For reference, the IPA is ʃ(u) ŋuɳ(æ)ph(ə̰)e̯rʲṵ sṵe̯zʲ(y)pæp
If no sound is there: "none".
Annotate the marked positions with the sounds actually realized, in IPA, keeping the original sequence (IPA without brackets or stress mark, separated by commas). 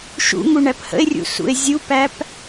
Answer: ṵ, æ, ə̰, u